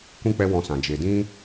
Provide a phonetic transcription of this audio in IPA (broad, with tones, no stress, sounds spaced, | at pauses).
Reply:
kʷ ĩ˦ k͡p ɛ˦ w ɔ̃˧ s ã˨ d͡ʒ e˨ d ĩ˦